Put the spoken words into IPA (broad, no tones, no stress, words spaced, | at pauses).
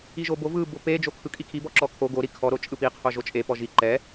iʒobo vɯ bope d͡ʒokʰɯkʼikʰi bɔǁɔkʰo ɡo ɾikʰɔ ɾot͡ʃʼɯpi qʰoʒot͡ʃʼe pɔʒi ǃɛ